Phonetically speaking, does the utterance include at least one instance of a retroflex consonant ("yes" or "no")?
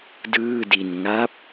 no